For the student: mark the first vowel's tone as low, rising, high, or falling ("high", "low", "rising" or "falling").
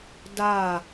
falling